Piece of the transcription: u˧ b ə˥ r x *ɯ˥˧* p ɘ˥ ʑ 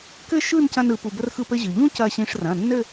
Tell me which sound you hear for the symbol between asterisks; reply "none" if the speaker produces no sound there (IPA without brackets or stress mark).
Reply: ɯ˥˧